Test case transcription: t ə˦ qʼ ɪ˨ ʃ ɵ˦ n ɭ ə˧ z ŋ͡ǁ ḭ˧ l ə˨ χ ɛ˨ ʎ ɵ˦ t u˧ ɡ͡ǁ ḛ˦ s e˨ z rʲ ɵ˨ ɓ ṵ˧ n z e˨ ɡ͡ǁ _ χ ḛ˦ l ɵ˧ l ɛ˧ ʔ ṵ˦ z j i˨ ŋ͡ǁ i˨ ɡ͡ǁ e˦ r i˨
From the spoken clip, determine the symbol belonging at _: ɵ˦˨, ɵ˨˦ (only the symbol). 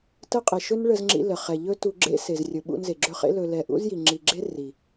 ɵ˦˨